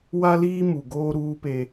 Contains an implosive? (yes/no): no